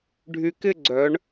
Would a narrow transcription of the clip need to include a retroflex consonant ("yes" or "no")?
yes